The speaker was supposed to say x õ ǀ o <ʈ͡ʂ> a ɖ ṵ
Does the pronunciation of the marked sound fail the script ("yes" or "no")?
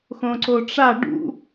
no